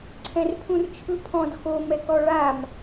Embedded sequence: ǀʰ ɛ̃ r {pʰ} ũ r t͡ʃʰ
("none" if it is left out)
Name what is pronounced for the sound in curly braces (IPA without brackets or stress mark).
pʰ